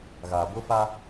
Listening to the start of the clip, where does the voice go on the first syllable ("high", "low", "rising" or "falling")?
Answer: low